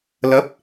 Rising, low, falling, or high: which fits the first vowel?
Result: rising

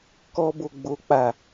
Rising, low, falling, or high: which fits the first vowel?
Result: high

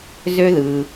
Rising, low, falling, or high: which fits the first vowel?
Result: high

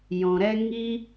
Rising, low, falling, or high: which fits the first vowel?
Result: low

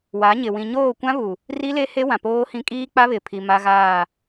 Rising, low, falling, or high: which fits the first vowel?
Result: rising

